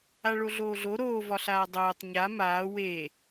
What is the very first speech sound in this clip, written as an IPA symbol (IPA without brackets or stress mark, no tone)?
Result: a